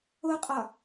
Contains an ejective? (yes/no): yes